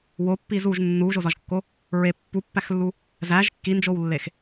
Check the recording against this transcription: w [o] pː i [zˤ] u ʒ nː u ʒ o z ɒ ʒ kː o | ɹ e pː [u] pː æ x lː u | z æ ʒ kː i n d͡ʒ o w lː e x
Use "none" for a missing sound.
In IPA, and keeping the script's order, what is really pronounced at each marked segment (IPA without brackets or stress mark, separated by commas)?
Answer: o, z, u